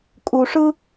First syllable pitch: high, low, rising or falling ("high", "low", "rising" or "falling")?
low